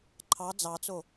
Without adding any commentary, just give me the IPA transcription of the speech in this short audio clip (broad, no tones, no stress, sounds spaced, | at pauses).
ǃʰ ɑ d͡z ɑ t͡s o